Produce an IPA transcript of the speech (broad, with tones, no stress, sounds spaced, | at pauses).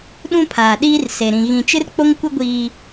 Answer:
ɗ ũ˦ pʰ aː˨ ɗ iː˦ r s e˨ ɾ ĩ˨ ɣ ĩ˨ t͡ʃ ɪ˦ r k͡p o˦ ŋ kʷ ɪ˦ ɡʷ iː˦